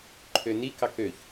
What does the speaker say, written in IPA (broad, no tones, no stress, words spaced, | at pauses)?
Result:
ǃʰønikɑk øç